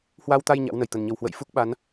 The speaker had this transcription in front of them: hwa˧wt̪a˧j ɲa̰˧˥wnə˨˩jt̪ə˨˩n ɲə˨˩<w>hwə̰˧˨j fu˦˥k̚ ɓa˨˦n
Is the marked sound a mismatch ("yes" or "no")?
no